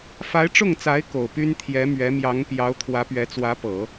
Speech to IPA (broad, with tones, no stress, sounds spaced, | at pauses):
f a˧˥ ɪ̯ ʈ͡ʂ ʊ˥˩ ŋ t͡s a˧˥ ɪ̯ k o˨˩ ʊ̯ p y˥ n t̪ʰ j ɛ˧˥ m ɥ ɛ˧˥ m j ɑ˧˥ ŋ p j ɑ˧˥ ʊ̯ t̪ʰ w ä˧˥ p ɥ ɛ˧˥ t͡s w ä˧˥ p ɤ˨˩˦